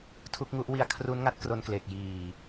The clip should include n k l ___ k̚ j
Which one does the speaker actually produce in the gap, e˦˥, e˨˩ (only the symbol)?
e˨˩